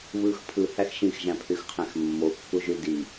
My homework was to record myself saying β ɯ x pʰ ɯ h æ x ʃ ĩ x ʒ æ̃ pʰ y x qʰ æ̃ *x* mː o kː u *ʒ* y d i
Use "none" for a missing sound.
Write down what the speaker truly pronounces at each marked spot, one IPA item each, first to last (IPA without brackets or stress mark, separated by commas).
x, ʒ